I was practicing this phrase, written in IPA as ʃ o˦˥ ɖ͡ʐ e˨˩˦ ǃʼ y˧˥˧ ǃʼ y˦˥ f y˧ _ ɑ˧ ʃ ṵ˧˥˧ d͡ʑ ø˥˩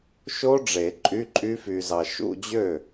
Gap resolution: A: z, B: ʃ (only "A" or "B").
A